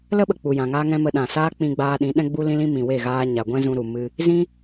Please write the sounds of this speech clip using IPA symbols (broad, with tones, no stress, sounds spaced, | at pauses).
l ə˦ ɓ ə˨ k͡p u˨ j ã˨ ŋ aː˦ ŋ ɛ̃˦ m ə˧ ɗ ã˨ s aː˦ k͡p ĩ˧ ɡ͡b aː˧ ɗ ĩ˨˦ ɗ ɛ̃˧ ɡ͡b u˧ l ĩ˧ l ĩ˧ m ĩ˨ w e˦˨ ɣ aː˧ ɲ a˨ ɡʷ ɛ̃˦ z ũ˧ ɾ u˨ m ɨ˧ | z ĩ˦